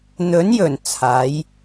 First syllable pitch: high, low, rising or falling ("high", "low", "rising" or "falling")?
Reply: rising